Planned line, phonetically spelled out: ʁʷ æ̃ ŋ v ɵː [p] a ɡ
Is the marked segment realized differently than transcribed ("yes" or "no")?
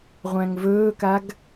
yes